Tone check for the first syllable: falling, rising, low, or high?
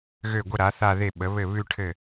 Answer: falling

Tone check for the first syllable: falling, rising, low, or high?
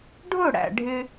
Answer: falling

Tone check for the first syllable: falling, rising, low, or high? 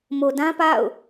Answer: low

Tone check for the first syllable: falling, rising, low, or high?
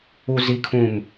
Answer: high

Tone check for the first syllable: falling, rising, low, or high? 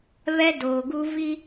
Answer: high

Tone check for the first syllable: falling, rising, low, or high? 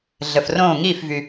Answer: low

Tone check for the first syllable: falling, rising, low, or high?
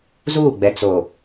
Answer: falling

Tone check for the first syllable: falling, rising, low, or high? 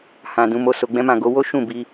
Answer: low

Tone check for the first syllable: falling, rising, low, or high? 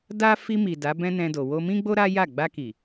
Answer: high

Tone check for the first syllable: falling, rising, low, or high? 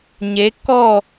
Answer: rising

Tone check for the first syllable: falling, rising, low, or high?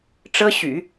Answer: high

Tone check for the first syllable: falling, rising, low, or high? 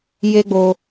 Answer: high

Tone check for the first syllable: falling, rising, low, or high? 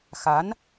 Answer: rising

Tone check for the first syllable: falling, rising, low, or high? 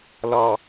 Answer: low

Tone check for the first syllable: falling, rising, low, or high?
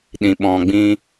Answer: low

